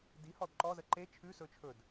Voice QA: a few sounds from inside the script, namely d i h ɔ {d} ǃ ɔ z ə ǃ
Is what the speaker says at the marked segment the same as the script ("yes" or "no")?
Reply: yes